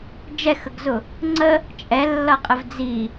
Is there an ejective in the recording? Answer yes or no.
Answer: yes